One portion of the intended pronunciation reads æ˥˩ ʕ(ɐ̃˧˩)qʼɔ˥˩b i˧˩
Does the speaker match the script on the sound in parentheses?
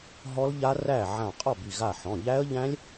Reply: no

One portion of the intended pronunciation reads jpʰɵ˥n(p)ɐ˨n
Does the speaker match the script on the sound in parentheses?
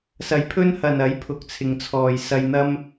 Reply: no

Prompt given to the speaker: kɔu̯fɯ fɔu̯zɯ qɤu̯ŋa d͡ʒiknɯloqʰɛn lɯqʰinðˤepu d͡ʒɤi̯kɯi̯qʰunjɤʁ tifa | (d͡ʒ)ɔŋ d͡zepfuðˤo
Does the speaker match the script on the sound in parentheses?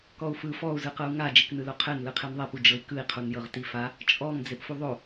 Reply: no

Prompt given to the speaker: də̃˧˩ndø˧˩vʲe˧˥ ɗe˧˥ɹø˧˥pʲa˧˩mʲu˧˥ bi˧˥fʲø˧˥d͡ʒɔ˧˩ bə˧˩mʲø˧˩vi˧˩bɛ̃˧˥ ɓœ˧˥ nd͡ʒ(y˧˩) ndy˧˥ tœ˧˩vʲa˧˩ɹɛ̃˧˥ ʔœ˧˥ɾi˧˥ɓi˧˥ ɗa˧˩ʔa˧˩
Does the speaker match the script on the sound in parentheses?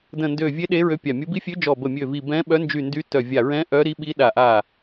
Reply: yes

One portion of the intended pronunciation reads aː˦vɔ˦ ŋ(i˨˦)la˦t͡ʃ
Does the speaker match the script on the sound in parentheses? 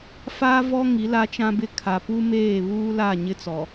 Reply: yes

